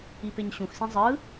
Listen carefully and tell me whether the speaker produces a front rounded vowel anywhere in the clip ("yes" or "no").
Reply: no